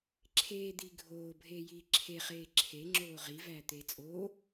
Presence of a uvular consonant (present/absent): present